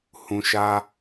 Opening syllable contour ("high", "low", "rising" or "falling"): low